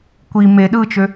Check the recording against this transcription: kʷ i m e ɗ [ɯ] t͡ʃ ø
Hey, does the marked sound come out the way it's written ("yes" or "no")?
yes